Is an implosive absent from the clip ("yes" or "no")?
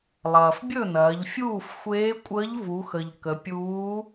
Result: yes